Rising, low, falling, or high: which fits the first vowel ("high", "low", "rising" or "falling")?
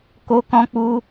high